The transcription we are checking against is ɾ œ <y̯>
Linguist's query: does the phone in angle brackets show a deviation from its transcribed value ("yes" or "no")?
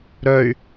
no